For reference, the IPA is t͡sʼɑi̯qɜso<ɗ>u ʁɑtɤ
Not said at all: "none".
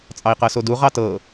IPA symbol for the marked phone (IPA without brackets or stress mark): d